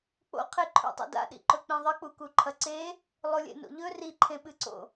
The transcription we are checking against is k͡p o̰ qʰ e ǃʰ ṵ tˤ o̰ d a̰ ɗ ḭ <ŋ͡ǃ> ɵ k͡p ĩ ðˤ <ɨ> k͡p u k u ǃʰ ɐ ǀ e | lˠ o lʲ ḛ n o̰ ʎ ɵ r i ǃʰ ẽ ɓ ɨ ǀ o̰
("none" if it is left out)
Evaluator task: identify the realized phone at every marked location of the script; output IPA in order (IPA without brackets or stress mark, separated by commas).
ǃ, ɨ